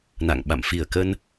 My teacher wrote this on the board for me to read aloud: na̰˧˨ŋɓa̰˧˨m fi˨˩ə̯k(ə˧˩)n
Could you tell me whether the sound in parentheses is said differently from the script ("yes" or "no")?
yes